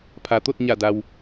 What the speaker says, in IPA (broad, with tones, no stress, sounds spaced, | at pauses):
pʰ a˩ t̪ o˥˨ t̚ ɲ a˧˩ d a˩ w